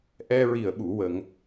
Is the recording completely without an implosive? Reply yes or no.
no